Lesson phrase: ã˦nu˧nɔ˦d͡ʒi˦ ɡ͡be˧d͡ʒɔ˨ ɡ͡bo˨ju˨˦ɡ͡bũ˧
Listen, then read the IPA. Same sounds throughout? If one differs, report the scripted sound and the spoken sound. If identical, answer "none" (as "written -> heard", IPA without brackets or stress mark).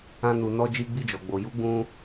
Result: e˧ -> i˧